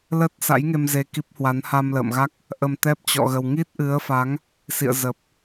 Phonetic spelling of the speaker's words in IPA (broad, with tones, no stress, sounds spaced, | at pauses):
l ə˦˥ t̚ s a̰˧˥ j ŋ e˧ m z e˧ k i˦˥ p̚ h w a˨˦ n h a˧ m l ə̰ː˧˨ m ɣ a˦˥ k̚ | ʔ ə˧ m t̪ ɛ˦˥ p̚ t͡ɕ ɔ̰˧˨ ɣ ə˨˩ w ŋ i˦˥ t̚ ʔ ɨ˨˦ ə̯ f a˨˦ ŋ | s ḭ˧˨ ə̯ z ə˨˩ p̚